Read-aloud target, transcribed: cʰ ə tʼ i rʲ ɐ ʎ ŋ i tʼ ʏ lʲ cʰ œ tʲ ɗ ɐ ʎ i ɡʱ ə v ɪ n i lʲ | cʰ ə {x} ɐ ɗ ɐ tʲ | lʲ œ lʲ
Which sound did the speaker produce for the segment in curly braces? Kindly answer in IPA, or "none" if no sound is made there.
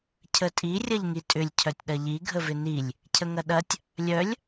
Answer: ŋ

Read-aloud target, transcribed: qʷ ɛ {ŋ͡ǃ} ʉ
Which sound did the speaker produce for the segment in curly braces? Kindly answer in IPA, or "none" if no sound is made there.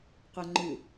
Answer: ŋ͡ǃ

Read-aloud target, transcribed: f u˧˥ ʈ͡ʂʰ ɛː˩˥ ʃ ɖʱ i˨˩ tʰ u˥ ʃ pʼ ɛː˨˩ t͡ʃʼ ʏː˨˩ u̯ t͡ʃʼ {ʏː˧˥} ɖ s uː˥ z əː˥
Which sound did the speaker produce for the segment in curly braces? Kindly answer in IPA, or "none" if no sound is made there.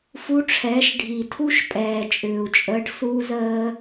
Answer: əː˧˥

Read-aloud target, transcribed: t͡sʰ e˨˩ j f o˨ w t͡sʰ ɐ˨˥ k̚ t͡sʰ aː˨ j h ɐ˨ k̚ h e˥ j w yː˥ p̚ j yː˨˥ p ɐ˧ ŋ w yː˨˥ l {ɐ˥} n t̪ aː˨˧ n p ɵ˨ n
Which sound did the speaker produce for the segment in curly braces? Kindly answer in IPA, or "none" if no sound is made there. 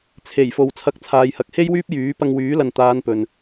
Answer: ɐ˨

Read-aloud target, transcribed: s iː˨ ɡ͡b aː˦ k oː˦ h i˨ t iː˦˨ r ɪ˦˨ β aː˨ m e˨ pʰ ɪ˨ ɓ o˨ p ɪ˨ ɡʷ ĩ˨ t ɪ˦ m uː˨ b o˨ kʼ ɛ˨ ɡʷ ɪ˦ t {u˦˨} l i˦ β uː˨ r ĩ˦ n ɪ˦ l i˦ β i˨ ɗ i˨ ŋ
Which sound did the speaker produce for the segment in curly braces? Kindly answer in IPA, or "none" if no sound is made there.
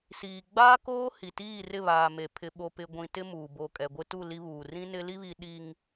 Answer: u˦˨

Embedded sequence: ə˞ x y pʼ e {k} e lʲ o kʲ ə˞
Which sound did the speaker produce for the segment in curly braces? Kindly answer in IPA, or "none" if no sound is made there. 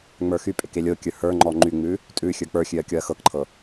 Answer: k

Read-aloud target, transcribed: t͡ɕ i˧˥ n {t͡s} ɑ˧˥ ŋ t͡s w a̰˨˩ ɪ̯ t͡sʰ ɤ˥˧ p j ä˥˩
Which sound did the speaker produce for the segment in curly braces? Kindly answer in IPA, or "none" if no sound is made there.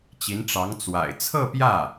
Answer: ʈ͡ʂ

